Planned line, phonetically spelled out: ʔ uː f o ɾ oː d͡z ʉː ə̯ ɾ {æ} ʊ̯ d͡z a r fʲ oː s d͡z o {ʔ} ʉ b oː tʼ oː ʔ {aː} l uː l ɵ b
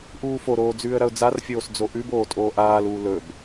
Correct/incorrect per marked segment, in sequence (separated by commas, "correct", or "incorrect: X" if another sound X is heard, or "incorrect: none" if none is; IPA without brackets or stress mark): incorrect: ɐ, correct, correct